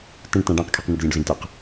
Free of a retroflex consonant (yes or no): no